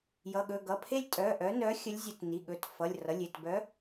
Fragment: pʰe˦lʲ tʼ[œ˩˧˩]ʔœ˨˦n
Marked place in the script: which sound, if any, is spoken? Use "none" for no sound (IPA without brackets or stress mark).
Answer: œ˩˧˩